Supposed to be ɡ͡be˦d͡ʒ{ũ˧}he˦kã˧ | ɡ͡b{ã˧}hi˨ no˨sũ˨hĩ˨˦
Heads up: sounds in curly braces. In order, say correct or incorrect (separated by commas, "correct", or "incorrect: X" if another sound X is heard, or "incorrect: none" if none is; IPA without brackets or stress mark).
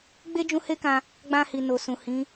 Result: correct, correct